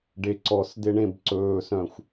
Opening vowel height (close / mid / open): mid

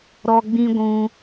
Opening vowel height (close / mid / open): mid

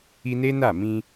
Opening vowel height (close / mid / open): close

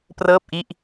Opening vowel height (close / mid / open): mid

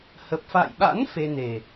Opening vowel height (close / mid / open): mid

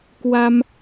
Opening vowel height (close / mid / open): open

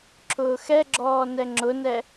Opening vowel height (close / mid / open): close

